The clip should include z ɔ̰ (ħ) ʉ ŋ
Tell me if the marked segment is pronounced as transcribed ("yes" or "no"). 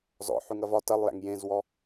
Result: yes